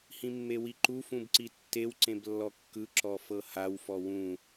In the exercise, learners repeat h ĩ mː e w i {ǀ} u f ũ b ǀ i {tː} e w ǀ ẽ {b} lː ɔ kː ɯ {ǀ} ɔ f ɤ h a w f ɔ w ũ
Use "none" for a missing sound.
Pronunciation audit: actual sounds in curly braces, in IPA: ǃ, tː, b, ǁ

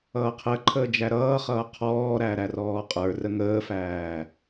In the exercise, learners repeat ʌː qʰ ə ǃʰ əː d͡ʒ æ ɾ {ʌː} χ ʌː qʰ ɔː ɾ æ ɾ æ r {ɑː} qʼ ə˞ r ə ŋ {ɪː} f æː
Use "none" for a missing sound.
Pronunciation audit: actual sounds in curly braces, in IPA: ʌː, ɔː, əː

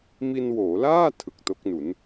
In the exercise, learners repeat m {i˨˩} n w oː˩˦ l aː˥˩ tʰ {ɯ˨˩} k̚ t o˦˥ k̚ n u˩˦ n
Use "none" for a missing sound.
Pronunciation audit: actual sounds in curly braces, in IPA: i˧, ɯ˨˩

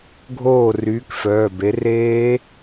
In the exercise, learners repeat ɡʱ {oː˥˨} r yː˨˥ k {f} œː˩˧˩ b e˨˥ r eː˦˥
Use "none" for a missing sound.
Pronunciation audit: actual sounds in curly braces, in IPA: oː˥˨, f

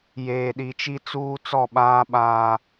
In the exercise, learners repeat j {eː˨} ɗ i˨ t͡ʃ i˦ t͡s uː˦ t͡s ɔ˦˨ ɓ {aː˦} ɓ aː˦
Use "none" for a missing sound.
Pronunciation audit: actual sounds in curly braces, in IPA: eː˨, aː˦

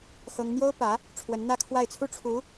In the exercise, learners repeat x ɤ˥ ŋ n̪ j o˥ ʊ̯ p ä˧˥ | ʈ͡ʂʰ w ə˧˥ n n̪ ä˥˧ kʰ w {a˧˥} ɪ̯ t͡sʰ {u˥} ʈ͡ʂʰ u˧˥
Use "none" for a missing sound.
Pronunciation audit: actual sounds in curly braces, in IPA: a˥˩, u˥

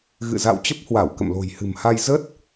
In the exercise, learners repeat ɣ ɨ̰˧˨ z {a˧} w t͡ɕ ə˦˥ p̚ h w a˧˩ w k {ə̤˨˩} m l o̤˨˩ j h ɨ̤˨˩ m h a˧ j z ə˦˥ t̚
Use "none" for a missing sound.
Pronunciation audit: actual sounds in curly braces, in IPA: a̰˧˨, ə̰˧˨

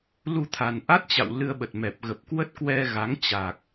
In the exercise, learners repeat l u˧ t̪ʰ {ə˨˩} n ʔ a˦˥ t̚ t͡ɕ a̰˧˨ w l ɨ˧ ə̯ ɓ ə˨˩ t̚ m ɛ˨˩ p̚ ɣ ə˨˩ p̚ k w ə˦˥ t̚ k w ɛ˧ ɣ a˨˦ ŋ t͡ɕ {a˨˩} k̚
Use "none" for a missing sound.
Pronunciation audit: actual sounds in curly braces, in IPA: a˨˩, a˨˩

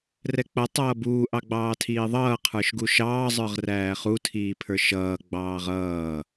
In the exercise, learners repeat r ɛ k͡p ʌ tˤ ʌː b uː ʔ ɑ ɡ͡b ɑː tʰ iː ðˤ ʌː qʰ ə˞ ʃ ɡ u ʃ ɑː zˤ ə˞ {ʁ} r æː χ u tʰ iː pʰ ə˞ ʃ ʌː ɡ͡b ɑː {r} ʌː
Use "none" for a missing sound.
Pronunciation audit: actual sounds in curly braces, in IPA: ʁ, ʁ

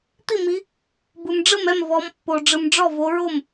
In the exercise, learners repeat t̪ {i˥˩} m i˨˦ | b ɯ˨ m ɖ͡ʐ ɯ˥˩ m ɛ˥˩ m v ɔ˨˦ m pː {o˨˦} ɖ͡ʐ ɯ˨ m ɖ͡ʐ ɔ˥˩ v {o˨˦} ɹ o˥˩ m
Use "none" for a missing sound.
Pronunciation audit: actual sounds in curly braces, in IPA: i˥˩, o˨, o˨˦

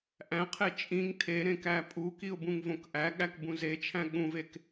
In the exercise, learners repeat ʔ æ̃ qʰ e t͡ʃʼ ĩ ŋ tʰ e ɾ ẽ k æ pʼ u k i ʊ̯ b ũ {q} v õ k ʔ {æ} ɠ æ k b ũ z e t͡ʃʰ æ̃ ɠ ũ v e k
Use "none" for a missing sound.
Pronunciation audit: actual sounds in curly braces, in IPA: ŋ, æ

